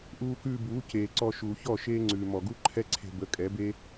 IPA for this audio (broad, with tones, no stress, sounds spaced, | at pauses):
ʔ uː˧ k ʉː˧ b uː˨˦ c eː˨ ǀ ɔ˧ ʃ uː˨ ç ɔ˦˨ ʃ eː˦ ŋ͡ǀ ʉː˨ m ɔ˨ ɡ u˦ ǃʰ ɛ˦ ǀʰ e̤˧ b ə˨˦ kʼ ɛ˨˦ b e˦